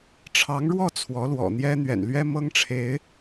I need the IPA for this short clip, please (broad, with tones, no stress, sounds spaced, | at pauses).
ʈ͡ʂʰ ɑ˧˥ ŋ ɻ w ɔ˥˩ t͡sʰ w ɔ˧˥ l w ɔ̰˨˩ n̪ j ɛ˥ n̪ ɥ ɛ̰˨˩ n l ɥ ɛ˥ m ɤ˥ ŋ ʈ͡ʂʰ e˧˥ ɪ̯